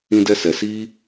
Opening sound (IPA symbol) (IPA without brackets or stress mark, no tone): ĩ